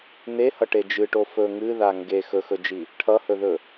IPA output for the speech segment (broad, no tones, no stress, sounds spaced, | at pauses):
n e h ʌ ʈ e d͡ʒ ɨ ʈ o f ɵ ŋ ɨ ð a ŋ ɡ e x ɵ x ɵ d͡ʒ i | ʈʰ ʌ h ɵ ð ɵ